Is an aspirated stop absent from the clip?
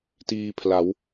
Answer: no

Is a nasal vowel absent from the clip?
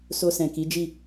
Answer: no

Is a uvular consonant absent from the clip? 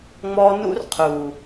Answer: no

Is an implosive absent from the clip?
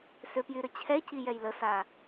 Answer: yes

